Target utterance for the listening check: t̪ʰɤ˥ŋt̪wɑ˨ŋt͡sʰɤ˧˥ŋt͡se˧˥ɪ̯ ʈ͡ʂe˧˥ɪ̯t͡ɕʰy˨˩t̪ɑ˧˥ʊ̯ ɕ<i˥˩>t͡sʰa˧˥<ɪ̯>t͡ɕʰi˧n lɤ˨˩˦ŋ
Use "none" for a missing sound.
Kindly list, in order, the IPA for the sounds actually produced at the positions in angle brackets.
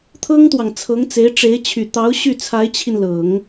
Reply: y˥˩, ɪ̯

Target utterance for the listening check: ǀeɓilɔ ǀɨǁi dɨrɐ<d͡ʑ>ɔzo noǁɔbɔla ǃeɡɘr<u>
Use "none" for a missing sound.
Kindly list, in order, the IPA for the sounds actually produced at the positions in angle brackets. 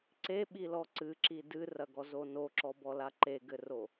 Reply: ɡ, o

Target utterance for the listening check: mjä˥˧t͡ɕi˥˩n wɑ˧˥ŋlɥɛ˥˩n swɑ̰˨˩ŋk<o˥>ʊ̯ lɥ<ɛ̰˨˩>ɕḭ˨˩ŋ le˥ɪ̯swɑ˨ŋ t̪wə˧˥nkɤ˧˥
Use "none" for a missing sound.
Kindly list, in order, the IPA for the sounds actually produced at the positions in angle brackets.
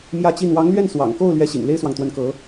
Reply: o˥˩, ɛ˥

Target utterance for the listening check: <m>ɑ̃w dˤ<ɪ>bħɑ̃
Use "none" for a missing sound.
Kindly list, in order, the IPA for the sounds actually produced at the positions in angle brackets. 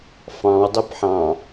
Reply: f, ɪ

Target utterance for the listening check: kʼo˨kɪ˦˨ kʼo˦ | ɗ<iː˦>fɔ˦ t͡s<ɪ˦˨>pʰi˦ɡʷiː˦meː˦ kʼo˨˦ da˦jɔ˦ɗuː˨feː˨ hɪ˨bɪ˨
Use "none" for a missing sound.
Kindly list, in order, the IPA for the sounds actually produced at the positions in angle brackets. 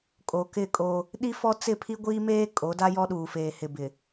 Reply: i˦, ɪ˦˨

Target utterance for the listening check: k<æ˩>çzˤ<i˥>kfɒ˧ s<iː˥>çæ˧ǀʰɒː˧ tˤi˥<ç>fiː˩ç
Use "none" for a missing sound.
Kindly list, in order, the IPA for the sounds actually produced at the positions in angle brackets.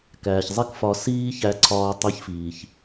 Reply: æː˩, i˥, iː˥, ç

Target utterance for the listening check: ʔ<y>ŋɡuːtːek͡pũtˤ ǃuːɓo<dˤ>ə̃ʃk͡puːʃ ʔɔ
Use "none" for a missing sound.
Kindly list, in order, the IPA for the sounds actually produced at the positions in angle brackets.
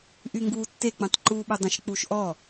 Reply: y, dˤ

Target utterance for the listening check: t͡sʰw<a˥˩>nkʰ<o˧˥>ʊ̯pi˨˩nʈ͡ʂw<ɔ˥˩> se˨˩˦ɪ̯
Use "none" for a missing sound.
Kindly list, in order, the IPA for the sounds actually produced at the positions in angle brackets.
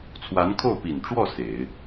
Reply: a˧˥, o˥˩, ɔ˥˩

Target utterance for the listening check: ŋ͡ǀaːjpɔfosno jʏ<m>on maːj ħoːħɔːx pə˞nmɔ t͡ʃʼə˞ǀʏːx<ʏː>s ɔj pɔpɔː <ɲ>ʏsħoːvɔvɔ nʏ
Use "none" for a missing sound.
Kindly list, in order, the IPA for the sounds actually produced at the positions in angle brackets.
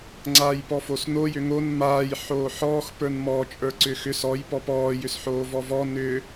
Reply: ŋ, ʏ, j

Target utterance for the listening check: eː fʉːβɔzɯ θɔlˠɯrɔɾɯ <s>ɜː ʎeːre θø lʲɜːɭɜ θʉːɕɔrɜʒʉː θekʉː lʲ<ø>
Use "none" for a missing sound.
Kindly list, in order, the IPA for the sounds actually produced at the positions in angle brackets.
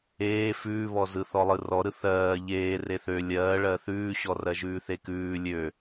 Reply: θ, ø

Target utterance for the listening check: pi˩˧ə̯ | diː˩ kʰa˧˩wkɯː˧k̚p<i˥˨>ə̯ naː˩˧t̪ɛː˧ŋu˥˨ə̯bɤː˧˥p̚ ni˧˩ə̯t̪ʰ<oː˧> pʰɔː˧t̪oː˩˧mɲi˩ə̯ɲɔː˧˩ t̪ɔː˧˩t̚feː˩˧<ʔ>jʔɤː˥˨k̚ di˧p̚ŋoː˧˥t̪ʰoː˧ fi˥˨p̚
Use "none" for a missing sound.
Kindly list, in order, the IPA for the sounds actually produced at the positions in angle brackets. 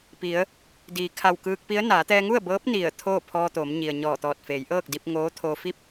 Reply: i˧˥, oː˥˨, none

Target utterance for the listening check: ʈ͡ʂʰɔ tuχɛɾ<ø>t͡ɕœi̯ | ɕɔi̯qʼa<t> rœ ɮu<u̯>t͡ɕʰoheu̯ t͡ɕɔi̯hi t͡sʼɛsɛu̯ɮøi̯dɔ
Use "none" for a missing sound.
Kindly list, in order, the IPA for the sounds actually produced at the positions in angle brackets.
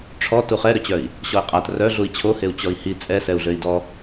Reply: ø, t, i̯

